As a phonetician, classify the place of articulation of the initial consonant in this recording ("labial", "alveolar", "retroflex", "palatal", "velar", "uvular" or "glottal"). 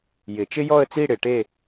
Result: palatal